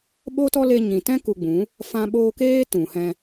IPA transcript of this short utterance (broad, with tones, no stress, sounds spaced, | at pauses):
ɓ o˦ t ɔ˦ l e˧ ɲ ĩ˨ t ɛ̃˦ k u˧ ɡ͡b ũ˨˦ | f ã˧ ɓ oː˧ k eː˦ t ũ˨ h ɛ̃˧